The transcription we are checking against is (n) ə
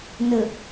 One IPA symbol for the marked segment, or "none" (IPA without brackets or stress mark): n